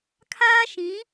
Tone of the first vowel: high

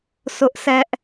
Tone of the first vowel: high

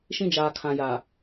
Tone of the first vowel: high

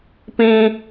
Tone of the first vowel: high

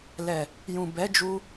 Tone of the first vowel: low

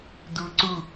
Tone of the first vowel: high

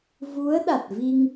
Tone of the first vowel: rising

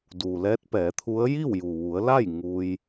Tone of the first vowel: low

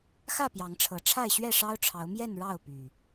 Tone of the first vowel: falling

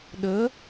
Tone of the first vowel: rising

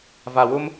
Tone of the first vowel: low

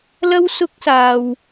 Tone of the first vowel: high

